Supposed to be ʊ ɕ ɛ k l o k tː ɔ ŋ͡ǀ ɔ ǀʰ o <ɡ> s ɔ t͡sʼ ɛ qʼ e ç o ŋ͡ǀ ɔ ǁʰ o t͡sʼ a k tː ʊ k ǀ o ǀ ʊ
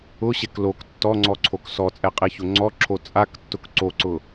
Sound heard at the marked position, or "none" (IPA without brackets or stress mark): k